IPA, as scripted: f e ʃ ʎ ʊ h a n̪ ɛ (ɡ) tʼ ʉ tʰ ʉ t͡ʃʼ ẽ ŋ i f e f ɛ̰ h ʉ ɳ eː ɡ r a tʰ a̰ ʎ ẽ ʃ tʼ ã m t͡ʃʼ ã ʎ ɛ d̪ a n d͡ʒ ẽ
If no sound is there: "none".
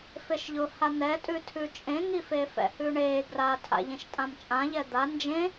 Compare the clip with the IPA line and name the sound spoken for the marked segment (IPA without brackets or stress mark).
none